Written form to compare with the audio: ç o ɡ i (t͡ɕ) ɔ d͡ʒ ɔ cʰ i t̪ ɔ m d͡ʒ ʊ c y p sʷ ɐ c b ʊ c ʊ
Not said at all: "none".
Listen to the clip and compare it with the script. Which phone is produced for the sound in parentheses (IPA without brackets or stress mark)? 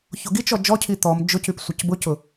t͡ʃ